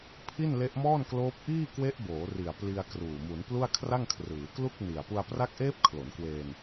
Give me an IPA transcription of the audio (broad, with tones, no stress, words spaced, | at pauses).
pʰi˥˩n le˦˥ʔmɔː˥˩nkloː˦˥p̚ ʔiː˥˩ kwe˦˥ʔboː˩˦ri˨˩a̯ pli˧a̯kruː˨˩ mu˩˦nplu˥˩a̯kʰra˥˩ŋ kʰrɯː˩˦klu˥˩k̚ni˨˩a̯ pu˧a̯pra˦˥k̚ʔeː˦˥p̚kʰlo˩˦n kwe˧n